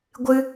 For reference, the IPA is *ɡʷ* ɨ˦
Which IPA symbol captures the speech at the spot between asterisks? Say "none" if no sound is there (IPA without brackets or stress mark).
ɡʷ